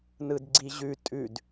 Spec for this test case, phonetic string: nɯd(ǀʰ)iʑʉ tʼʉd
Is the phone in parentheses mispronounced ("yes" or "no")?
yes